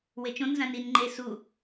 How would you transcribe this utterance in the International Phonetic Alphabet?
wet͡ʃõn zãnin ŋ͡ǃe su

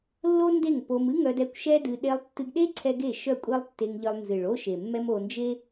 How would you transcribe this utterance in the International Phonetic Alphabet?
lːo˦nde˦˨ŋ po˧m ɨ˦ŋœ˧dɛ˧kʷ ʃɛ˦dɨ˧ ɗe˧lˠtːɨ˧ɡɗe˦ ǀʰɛ˦ɡe˦˨ ʃœ˦˨kʷʼe˦lˠtːe˧ŋʎɨ˧lˠ nzɨ˨ɭo˦ʃe˨mːɛ˦m o˧ nd͡ʒe˦

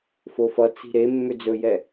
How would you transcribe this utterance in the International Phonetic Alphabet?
fofʌ t͡si̤ɾe mːʏd͡zɵjɛ

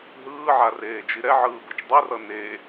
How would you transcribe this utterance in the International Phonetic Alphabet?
ɦɯːʕareːd͡ʒi ɾɛʕɯːbɯt͡ʃ dˤerʌ ne

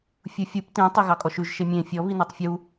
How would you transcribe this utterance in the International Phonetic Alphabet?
fʲufʲup tĩ tˤeɣɑkʼɔʃʉʒ ʃemʲẽ fʲɔ βinetˤfʲu

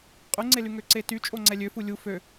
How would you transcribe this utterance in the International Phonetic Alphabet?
qʼyŋ͡ǀely ŋøǀety t͡ʃʼoŋ͡ǀɛlʲøfu lʲu fø

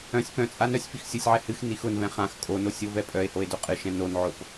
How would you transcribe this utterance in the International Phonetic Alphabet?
œ̃sʲ pœ̃t͡sʼa nœsʲ fixsʲosʲʕɛ hɨx nixʊnvɛ̃ χãx kʼono sʲovɛpʼœe̯hoe̯ doqʼɨʃɛ̃ nonʕop

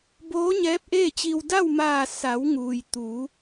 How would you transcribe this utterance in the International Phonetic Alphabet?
boː˧˥ɲɛː˧˥p̚ʔeː˥˨t͡ɕi˧w da˥˨wmaː˧˩ sa˩˧w ŋuː˩j t̪uː˩˧

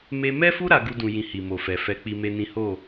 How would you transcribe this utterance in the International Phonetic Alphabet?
me˧mɛ˦fu˦ ɾa˦ɡu˦dũ˧ jĩ˧hi˨mo˨fɛ˨ fɛ˧ k͡pi˦me˦nĩ˦ ho˦˨

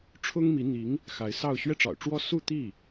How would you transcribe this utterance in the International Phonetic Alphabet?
ʈ͡ʂʰʊ˥ŋmi˧˥ n̪i˧˥ŋ | xa˧˥ɪ̯sɑ˥˧ʊ̯ ɕɥɛ˥˩ʈ͡ʂɑ̰˨˩ʊ̯ʈ͡ʂwɔ˥ su˥˧t̪i˥˩

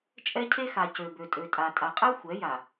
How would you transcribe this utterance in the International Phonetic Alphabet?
t͡ʃʼɛ˦cʰe˦xa˨ cø˨bø˨tʼø˨tʼa˨ tʼa˨qʼɛ˦ xʷɛ˨˦ja˨

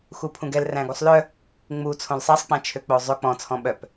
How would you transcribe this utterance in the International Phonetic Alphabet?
xupʰũɡɛl ræ̃ɡusˤlœ | ŋ͡mut͡sʰõl sˤɛsˤk͡pæ̃ t͡ʃʰøk͡pozˤø k͡pɔ̃t͡sʰɔ̃ ɓœp

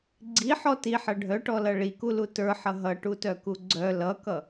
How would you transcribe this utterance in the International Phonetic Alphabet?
ɡ͡ǀiħɔ tiħʌ ɖʱœʈɔlʌ ɭikulu tə˞ħʌ ɦʌʈutœku ɡ͡ǀœ lʌkʌ

